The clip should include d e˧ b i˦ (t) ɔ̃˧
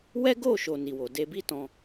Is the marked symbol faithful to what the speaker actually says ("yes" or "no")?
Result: yes